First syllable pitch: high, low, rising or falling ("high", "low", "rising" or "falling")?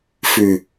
low